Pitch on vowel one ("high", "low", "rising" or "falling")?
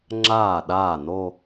falling